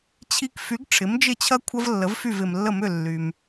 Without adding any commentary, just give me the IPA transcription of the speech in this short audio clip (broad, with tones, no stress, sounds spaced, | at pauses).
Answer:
t͡ɕʰ i˧ k f y˩˥ ɡ ʈ͡ʂʰ ɪ˩˥ m d͡ʒ ɪ˥˩ t͡ɕʰ ɐ˥ kʷʰ ɐ˥ v lː ə˩˥ v f y˥˩ v ɪ˩ m lː ə˥˩ m ʏ˥˩ lː y˩ m